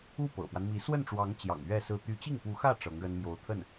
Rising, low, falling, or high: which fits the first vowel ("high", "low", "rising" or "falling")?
falling